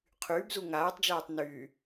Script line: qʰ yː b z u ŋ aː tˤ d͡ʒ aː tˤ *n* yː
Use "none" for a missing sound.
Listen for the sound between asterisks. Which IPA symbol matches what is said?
n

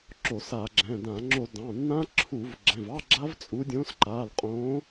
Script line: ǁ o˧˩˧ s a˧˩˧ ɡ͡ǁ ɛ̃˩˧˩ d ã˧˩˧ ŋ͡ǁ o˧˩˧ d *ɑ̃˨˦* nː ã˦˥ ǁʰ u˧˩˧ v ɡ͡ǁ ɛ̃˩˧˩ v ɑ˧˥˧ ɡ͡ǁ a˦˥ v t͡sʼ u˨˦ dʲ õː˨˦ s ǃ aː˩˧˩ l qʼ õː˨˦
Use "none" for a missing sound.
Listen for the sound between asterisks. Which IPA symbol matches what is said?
ɑ̃˩˧˩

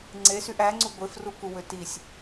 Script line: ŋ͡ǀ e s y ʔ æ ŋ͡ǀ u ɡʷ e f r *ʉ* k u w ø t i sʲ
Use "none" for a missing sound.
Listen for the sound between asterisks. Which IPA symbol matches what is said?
u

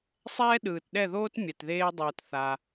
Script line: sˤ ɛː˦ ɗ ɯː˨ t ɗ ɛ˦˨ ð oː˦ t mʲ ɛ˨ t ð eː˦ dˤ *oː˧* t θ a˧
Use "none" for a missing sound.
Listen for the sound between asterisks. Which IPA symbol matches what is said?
oː˧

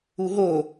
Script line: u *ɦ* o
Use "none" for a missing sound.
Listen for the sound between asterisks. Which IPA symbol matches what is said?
ɦ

